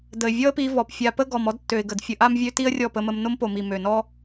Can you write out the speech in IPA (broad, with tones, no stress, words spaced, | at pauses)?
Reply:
də˨ɪ̯ vʲɔ˦ə̯pi˧vɔ˨p fʲa˧ pə˦ɡɔ˨m ɔ˦dtːø˨ɪ̯ɡə˨d fʲə˧ʔa˦mvʲø˦ ti˦ə̯rʲɔ˦˨pə˧mə˧m no˦mpo˨mi˨ mø˨nɔ˦